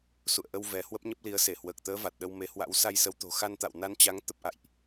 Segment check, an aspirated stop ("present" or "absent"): absent